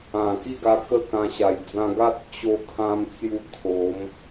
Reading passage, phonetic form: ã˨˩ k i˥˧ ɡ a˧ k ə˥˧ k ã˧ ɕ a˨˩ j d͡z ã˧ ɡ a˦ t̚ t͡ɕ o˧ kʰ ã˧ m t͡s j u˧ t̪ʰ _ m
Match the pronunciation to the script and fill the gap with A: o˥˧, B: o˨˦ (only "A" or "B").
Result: B